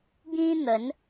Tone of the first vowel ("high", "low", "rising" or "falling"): high